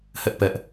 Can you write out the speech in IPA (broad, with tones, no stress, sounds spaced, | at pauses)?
h ɛ˦ ʔ p ɛ˦ ʔ